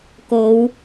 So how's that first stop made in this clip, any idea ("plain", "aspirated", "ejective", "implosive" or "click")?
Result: plain